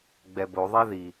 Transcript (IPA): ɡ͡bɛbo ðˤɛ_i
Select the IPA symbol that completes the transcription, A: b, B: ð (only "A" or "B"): B